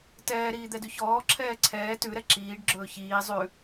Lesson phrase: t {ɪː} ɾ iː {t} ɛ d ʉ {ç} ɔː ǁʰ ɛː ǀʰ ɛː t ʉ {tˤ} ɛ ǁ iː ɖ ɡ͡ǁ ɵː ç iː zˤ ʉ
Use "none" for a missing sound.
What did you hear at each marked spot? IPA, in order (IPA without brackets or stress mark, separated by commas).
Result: ɛː, d̪, ç, ɾ